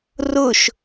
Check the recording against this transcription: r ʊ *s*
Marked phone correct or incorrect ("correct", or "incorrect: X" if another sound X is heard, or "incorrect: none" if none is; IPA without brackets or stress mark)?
incorrect: ʃ